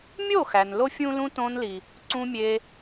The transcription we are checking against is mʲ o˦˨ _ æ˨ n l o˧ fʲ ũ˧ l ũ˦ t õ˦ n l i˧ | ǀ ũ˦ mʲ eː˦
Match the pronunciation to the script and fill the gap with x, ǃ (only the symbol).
x